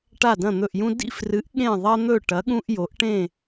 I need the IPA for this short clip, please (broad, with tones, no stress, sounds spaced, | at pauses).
ʈ a˦˨ d ɐ̃˦˨ n̪ ɵ˦˨ ʔ j ũ˦ d ḭ˦˨ f r ɨ˨˥ ʔ ɠ ẽ˦˨ ðˤ ɐ˦ n̪ ɵ˦˨ ʈ ɐ˨˥ ɠ ũ˦ ʔ j o˨˥ ʔ ʈ ẽ˦˨